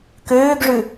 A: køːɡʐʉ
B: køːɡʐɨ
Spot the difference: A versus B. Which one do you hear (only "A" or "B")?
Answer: A